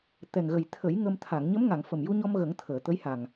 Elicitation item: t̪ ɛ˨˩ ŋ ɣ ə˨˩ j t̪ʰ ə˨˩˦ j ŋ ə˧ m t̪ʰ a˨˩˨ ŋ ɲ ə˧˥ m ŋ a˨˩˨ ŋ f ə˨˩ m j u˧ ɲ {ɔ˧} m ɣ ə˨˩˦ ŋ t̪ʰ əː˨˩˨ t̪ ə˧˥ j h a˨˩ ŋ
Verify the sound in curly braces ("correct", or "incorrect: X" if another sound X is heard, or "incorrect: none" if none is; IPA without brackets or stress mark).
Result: correct